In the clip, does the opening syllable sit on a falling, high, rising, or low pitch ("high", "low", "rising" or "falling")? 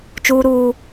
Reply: high